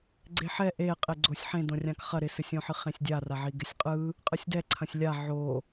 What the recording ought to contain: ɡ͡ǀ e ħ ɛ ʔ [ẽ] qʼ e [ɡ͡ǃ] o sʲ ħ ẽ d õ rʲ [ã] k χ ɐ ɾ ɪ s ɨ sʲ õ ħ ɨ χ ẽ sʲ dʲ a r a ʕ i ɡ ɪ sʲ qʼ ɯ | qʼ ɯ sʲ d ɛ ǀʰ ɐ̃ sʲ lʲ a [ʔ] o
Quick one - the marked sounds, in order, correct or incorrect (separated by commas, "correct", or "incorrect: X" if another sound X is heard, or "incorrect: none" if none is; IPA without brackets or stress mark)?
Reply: incorrect: e, incorrect: ɡ͡ǀ, correct, incorrect: ʕ